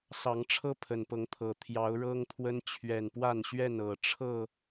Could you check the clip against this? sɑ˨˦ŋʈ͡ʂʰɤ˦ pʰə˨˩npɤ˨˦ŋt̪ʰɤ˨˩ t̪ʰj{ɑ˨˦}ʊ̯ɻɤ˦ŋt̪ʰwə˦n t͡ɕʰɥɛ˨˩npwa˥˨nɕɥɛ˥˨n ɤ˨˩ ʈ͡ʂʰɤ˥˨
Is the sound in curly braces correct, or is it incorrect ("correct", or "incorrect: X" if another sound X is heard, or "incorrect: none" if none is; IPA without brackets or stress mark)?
correct